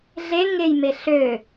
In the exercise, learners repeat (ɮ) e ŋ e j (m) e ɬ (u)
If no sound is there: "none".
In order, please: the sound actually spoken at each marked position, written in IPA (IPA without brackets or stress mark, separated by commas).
ɮ, m, ø